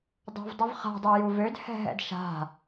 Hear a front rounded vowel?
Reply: yes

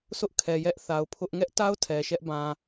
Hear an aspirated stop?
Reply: yes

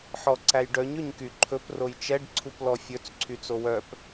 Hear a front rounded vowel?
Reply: yes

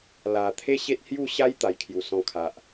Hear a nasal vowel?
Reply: yes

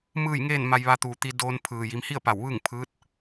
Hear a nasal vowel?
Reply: no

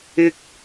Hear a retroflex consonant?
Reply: no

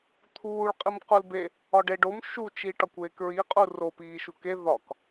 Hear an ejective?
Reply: yes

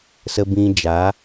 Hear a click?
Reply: no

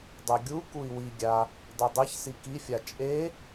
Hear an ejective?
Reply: yes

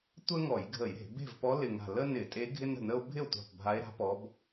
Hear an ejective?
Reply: yes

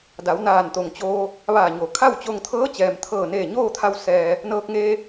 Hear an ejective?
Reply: no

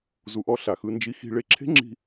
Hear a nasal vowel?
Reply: no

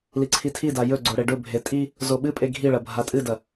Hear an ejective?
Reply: yes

